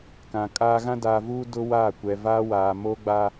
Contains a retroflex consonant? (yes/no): no